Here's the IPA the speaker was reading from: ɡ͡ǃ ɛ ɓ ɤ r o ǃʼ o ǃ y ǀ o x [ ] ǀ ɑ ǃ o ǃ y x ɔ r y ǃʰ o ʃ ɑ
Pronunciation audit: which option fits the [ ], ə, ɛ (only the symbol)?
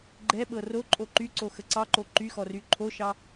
ə